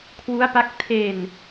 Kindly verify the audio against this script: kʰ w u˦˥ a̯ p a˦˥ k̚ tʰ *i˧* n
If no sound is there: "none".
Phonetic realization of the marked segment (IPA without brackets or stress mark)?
e˧